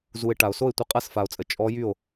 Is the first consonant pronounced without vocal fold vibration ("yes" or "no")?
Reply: no